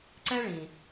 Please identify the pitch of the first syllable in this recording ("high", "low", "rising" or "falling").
high